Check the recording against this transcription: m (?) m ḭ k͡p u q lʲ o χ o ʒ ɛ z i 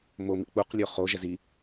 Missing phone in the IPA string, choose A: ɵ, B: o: B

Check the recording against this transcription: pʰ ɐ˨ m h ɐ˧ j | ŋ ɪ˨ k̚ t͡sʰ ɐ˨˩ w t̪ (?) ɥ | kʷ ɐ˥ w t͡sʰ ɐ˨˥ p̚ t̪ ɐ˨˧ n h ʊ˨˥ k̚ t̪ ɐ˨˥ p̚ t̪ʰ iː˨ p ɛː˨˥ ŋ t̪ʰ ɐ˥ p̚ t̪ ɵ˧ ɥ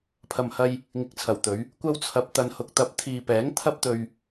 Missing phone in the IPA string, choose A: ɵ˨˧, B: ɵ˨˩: A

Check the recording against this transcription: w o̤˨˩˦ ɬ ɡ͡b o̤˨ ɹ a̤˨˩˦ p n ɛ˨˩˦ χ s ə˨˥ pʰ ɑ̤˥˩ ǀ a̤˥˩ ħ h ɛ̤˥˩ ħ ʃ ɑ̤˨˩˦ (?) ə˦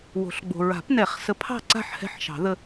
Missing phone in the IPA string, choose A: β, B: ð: B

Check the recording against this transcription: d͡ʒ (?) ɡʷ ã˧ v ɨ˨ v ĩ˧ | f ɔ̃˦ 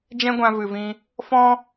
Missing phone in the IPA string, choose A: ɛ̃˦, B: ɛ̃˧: A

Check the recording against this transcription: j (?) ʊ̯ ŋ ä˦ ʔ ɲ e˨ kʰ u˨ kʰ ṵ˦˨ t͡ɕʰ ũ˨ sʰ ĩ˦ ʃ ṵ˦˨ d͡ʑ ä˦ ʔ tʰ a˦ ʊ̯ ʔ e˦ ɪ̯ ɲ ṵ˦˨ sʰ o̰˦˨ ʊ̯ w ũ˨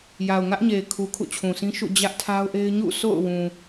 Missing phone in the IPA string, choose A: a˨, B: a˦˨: A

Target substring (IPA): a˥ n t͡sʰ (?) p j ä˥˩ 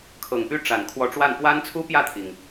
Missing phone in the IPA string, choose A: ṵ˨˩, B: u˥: B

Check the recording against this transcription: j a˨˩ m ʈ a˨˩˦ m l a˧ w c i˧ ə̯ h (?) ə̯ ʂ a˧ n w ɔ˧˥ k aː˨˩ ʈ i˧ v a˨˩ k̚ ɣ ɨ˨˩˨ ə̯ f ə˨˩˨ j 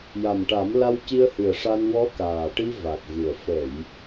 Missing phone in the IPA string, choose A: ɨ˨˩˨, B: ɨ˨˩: B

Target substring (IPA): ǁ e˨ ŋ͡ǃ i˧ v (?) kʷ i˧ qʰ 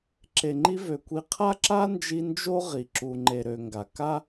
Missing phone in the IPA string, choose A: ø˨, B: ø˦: A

